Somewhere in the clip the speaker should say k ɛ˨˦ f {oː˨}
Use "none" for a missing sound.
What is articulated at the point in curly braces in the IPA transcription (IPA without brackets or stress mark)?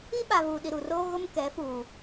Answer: uː˨